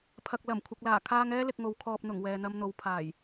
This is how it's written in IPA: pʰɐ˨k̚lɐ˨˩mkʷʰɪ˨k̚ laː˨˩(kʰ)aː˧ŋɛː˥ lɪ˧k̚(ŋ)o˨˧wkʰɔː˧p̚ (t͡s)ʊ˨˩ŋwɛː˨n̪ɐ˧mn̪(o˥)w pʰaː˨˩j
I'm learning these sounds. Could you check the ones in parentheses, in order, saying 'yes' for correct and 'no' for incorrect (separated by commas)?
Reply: yes, yes, no, no